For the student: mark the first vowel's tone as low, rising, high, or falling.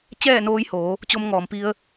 falling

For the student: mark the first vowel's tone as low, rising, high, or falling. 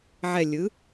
low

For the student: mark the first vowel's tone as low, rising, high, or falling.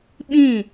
falling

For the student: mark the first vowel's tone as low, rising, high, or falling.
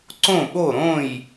falling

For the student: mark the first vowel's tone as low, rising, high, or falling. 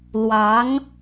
rising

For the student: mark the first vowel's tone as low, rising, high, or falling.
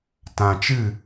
low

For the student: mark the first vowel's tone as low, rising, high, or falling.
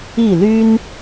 falling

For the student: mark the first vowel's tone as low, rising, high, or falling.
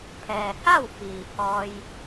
low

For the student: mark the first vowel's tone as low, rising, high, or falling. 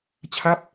falling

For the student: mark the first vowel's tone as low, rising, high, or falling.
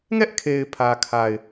high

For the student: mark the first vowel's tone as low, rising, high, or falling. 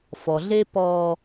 low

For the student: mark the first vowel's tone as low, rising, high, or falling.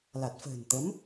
low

